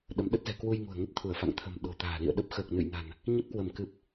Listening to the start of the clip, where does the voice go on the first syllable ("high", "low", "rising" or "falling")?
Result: rising